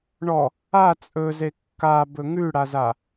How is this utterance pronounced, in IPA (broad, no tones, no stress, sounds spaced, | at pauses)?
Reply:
ɳ ɔ | a t͡sʼ ɵ z e kː a b ɵ ŋ ʉ ɽ a z a